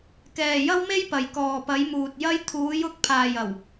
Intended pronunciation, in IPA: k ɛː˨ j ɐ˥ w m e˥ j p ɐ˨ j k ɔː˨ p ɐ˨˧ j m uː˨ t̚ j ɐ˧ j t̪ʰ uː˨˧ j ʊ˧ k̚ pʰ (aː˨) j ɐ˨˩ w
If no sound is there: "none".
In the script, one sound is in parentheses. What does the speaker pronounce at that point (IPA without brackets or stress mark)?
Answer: aː˨